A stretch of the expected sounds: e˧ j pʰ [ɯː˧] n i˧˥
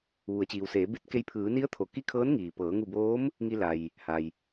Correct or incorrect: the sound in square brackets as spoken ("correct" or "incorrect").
incorrect